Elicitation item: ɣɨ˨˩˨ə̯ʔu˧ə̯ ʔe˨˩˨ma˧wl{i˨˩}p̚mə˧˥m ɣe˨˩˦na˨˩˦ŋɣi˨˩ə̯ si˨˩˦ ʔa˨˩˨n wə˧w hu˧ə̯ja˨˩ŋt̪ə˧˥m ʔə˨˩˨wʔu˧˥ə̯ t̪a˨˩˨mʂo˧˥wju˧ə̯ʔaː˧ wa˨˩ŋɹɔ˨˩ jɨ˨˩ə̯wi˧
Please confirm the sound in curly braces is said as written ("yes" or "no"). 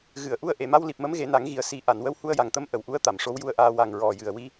yes